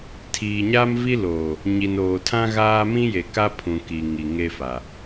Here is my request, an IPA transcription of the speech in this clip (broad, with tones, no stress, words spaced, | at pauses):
tʰiː˨ɲa˦mvi˦loː˨ | ɲi˨noː˨tʰã˦ ɣaː˦ mĩ˦je˨ka˦ pʰũ˨ ki˨ŋi˨ŋe˦fa˨